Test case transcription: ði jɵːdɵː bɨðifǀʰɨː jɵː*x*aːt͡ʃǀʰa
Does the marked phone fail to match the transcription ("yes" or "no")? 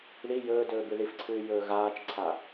yes